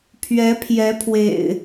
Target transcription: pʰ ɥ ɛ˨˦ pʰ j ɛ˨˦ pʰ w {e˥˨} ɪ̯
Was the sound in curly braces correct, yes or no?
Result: no